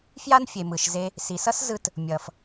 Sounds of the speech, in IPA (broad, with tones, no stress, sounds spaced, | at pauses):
f j a˥ n fʲ e˩ m ɯ˩ ʃ z e˧ | s i˩ s ʌ˥ s z ɯ˧ t | mʲ ʌ˩ f